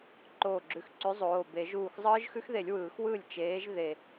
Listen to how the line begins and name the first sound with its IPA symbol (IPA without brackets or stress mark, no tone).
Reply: ǃ